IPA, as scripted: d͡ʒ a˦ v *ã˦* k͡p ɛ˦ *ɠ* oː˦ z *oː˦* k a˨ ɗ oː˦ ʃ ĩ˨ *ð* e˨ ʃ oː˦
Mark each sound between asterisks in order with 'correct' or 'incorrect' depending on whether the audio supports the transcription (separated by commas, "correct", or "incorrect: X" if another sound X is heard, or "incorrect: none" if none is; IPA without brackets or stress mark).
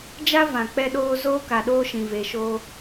incorrect: ã˨, incorrect: ɗ, correct, incorrect: v